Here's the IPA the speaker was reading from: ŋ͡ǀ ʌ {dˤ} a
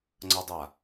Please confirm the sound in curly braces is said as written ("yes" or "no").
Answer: yes